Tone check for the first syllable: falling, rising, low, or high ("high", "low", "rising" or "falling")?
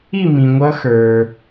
falling